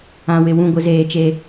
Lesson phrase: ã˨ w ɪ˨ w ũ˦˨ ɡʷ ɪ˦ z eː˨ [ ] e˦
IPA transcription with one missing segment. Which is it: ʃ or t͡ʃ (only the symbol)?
t͡ʃ